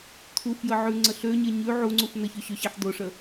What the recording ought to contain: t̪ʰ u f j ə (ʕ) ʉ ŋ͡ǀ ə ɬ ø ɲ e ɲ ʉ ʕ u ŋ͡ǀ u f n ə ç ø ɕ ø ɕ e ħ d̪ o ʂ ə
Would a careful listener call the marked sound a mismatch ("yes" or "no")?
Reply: no